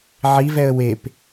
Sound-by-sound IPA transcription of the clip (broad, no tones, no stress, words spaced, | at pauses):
ʕivɛə̯ wep